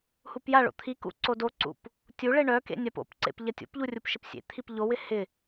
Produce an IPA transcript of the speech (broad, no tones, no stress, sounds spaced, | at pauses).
h u p j a ɭ o̰ t̪ʰ i k ṵ ǀ o d o ǀ ṵ p | tʲ u ɭ e ɳ œ k ḛ nʲ a p o̰ p ǀ ḛ p ʎ ɐ tʲ o̰ p ʎ u rʲ u p ʃ ɪ p sʲ ḛ t̪ʰ i p ʎ o w ɪ h ɪ